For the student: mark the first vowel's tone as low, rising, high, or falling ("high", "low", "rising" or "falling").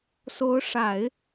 rising